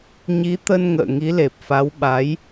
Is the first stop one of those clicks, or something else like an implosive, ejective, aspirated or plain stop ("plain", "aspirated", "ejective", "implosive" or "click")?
plain